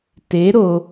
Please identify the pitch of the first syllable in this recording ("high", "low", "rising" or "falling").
rising